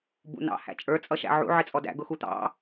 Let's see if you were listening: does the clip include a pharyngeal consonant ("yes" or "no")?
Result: yes